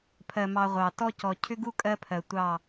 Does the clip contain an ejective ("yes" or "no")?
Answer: yes